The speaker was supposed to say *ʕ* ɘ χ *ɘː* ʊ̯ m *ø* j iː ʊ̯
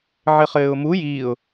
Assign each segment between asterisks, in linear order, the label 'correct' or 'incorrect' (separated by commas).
correct, correct, incorrect